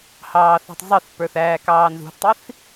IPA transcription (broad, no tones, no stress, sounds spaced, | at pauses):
h ɑː θ æ̤ tˤ zˤ ɪ θ p ə˞ θ æː k ɑː n z ṳ θ tˤ i θ